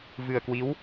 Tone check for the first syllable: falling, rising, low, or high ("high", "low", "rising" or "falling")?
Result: low